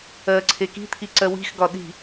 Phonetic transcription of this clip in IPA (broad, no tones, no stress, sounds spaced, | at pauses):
ɜ ǀʰ e k i̤ t̪ʰ i ǀ ɜ w i̤ x ɡ ɒ ɗ i̤